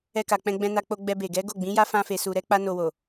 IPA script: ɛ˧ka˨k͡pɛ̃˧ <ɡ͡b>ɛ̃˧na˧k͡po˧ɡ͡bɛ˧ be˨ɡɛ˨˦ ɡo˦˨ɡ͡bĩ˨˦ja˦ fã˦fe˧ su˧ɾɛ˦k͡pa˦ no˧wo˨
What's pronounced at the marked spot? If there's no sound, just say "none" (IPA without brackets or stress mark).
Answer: ɡ͡b